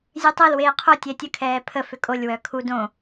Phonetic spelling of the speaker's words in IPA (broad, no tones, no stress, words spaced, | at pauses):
zʲøtˤelweː qʰo tʲɛtʲəkʰɛː pʰəfʏ kʼolʲwœ kʰu dõ